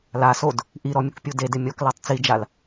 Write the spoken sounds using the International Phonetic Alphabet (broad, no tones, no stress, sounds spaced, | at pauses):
l a s o d | ʔ i ɾ ɔ mʲ ʊ k pʲ u d e d ɪ mʲ ɔ k l a tˤ t͡s i d͡ʒ a l